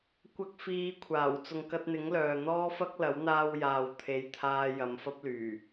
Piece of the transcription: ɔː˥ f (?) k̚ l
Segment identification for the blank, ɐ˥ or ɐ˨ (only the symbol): ɐ˥